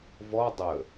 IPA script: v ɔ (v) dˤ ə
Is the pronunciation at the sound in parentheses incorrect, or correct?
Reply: incorrect